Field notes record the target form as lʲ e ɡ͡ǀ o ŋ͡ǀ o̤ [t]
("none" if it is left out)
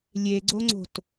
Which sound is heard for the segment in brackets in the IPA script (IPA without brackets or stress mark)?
t